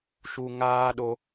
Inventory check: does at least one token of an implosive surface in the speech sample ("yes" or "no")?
yes